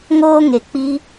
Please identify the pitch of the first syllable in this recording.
high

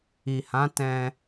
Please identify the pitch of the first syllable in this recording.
low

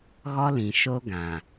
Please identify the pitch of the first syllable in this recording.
high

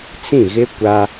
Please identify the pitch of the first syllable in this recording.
falling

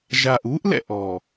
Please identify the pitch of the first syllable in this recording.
low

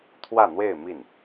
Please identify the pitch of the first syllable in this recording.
falling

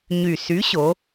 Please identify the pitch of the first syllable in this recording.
low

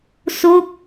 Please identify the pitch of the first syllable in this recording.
falling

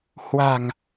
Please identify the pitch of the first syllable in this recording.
low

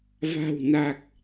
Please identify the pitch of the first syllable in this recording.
low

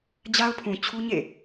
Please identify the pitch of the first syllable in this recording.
high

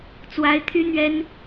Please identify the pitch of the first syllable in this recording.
high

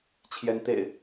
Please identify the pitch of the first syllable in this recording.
rising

